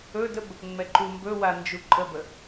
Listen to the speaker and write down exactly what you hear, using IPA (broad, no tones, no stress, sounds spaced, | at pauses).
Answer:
ɵ d ə b | ŋ͡m ɛ ǃ u m b ɵ w a n d͡ʒ u ǃʼ ə b ə